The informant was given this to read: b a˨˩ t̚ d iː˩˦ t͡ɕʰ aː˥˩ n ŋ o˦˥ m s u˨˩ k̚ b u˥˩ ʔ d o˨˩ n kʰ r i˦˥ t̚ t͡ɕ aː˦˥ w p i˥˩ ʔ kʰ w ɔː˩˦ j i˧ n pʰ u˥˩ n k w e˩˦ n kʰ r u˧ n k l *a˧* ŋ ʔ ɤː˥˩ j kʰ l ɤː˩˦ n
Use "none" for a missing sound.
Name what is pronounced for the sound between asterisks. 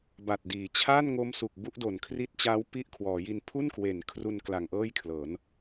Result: a˨˩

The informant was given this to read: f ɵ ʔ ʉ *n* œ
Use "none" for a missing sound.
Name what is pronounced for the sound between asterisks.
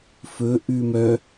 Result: m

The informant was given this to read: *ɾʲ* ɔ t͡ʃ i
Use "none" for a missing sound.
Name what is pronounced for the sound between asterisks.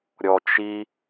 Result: ɾʲ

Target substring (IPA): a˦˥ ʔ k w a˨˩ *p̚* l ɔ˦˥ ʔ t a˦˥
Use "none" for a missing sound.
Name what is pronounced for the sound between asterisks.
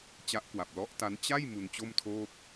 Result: p̚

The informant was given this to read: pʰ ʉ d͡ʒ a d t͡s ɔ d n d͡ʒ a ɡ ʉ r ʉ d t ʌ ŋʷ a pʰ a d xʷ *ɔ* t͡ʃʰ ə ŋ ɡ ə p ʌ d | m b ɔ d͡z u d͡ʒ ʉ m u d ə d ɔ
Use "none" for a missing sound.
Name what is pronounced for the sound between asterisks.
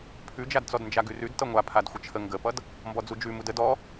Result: ə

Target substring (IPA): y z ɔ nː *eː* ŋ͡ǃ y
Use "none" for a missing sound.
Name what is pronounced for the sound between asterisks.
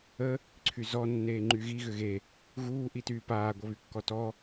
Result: eː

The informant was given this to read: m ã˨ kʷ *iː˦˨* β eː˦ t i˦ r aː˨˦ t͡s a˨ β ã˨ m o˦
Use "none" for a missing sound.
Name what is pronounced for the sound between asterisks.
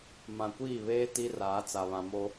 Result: iː˦˨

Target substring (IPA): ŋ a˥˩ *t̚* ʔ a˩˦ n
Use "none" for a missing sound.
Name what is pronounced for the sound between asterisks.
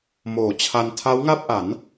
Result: p̚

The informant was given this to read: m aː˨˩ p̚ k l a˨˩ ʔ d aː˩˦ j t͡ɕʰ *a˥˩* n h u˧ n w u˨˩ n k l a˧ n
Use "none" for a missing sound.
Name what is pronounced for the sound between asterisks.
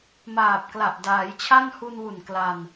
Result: a˥˩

